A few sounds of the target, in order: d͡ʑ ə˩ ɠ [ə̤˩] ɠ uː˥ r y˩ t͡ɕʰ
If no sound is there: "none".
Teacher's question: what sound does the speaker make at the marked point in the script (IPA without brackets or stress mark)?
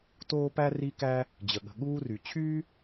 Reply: ə̤˩